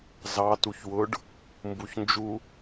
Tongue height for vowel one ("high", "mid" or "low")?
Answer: low